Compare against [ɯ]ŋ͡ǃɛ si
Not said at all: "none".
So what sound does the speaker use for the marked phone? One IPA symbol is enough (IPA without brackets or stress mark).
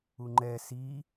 u